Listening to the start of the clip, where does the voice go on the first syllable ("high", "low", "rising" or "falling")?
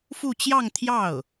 falling